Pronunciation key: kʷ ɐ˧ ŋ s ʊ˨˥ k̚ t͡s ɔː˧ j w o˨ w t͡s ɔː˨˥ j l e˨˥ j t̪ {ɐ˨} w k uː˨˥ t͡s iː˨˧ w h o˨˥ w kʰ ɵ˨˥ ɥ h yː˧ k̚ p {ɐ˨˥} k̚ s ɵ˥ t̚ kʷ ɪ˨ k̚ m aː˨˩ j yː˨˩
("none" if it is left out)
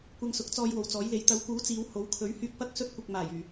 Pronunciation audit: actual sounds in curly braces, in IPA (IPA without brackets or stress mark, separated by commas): ɐ˨˥, ɐ˥